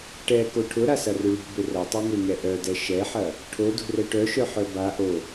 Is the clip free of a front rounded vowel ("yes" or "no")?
no